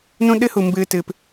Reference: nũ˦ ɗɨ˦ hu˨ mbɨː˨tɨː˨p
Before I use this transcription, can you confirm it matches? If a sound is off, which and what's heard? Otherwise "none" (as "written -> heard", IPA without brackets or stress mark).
none